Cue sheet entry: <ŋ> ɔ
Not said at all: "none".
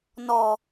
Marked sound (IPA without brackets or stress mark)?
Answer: n